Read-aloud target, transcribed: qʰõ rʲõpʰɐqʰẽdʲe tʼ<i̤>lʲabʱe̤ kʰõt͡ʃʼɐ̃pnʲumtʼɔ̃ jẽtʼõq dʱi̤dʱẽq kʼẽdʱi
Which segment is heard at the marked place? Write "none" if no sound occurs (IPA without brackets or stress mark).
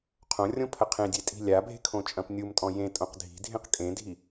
i̤